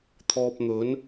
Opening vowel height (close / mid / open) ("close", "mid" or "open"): mid